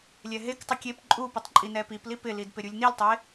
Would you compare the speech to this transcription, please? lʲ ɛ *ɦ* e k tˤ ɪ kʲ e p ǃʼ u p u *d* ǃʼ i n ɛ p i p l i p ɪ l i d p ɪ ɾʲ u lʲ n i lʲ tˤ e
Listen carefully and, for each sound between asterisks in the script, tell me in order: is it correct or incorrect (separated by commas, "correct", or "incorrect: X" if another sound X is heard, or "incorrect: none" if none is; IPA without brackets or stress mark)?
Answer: correct, incorrect: tˤ